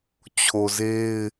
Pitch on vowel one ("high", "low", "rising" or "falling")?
low